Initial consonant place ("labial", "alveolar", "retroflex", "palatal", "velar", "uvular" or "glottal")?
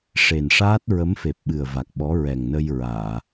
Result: retroflex